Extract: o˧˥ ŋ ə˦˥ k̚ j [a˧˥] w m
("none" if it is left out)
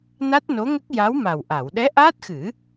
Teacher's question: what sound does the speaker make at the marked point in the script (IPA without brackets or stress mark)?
a˧˥